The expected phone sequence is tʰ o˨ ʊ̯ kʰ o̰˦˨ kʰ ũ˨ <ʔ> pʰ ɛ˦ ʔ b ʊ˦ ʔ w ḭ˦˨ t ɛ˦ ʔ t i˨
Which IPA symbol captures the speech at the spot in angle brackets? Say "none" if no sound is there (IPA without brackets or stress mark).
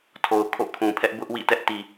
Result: none